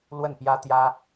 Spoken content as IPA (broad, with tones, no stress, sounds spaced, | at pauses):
l w ə˥˩ n p j ä˥ t̪ j ä˥